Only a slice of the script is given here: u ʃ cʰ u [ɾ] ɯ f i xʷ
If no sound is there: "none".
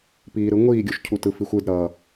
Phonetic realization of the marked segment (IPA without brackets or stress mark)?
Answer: t